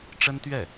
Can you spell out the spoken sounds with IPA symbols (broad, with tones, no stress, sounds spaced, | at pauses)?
ʈ͡ʂ ə˥ n t̪ ɥ ɛ˥˩